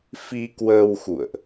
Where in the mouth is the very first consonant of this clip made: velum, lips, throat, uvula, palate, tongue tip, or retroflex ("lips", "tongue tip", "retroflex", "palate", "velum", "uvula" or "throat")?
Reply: lips